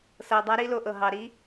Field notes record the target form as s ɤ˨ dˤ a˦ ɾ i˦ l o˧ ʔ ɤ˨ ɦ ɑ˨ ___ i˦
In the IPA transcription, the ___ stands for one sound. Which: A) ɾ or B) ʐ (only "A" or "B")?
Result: A